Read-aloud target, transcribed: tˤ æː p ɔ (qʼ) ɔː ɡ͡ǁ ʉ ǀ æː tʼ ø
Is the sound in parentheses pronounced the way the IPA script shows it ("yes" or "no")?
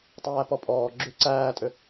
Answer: no